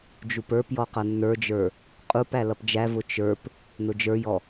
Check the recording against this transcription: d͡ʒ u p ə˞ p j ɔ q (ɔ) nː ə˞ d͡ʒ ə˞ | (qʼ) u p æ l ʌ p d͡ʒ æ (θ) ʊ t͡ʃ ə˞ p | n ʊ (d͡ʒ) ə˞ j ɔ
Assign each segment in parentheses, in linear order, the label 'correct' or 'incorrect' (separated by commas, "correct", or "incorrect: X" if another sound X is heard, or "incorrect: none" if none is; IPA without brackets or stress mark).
incorrect: ʌ, correct, incorrect: v, correct